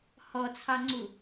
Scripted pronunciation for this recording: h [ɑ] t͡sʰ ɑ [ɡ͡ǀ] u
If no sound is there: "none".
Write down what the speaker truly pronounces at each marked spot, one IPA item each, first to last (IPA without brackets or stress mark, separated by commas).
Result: ɔ, ŋ͡ǀ